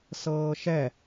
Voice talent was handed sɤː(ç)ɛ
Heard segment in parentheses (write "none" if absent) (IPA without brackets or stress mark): ʃ